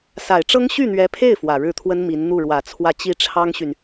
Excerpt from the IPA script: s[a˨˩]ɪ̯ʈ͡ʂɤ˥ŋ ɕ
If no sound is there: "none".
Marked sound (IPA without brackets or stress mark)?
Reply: a˨˩